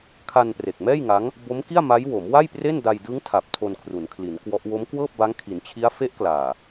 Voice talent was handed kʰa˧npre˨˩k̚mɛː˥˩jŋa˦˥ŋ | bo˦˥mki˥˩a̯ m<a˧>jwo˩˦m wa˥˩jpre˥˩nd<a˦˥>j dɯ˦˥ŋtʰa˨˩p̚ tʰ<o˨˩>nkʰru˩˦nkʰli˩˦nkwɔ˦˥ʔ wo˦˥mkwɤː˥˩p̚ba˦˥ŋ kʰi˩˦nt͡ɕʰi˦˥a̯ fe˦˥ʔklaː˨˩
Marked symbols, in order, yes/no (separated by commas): no, no, no